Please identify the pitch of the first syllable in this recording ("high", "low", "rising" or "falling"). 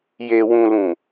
low